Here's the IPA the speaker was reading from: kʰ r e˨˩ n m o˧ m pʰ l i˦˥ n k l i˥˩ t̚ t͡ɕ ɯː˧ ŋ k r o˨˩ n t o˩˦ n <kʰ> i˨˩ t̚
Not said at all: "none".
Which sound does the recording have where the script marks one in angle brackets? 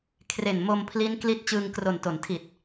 tʰ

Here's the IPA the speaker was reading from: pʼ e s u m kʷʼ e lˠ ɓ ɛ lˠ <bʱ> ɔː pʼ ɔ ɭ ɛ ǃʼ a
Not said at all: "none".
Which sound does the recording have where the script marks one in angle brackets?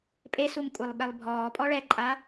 bʱ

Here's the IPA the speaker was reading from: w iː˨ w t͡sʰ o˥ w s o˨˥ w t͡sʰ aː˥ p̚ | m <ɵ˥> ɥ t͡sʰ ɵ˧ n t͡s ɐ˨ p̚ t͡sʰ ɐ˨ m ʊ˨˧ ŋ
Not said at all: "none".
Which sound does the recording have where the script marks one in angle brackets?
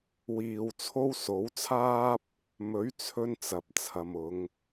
ɵ˨˥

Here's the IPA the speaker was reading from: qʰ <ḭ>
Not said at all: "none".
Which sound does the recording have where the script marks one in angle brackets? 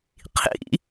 ḭ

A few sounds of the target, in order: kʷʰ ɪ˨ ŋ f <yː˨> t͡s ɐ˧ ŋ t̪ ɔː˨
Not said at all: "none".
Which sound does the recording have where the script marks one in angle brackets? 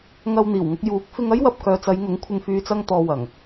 yː˨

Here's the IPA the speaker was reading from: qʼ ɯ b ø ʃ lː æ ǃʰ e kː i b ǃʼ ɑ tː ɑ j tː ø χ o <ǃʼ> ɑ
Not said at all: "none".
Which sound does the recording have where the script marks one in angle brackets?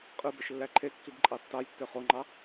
ŋ͡ǃ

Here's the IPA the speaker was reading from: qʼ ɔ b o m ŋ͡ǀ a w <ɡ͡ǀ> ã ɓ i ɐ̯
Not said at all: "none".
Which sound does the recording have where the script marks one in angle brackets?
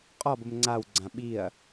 ɡ͡ǀ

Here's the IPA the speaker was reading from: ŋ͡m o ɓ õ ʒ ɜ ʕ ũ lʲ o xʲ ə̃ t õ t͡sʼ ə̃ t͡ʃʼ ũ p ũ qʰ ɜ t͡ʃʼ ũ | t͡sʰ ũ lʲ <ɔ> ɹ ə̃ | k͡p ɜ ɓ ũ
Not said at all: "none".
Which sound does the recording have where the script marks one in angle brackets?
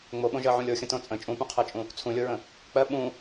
o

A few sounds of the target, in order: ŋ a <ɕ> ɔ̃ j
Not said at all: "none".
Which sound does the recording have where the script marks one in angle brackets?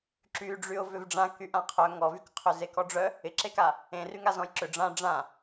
z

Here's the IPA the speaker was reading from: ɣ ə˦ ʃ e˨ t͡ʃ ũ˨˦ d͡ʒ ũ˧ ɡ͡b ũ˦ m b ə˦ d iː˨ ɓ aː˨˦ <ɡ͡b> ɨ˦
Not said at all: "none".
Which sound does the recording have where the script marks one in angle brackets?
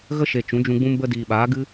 ɡ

